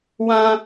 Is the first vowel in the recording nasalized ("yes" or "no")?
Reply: yes